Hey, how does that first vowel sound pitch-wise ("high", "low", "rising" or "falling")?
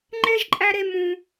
high